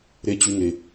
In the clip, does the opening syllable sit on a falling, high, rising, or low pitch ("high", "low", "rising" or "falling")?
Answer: high